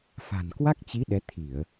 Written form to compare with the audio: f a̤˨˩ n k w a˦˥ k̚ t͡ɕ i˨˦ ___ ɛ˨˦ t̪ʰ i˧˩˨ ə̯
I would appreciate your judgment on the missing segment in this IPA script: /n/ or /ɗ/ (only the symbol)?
ɗ